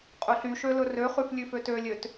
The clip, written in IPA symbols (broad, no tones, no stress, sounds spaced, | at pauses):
qʼ ɵ ɬ y ʃ ø l ɵ r ø χ ʉ f lʲ ʉ f ø t ø lʲ ø t